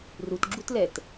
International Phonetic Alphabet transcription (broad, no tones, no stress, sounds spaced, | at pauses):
r u t ɡ͡ǁ u t l ɛ t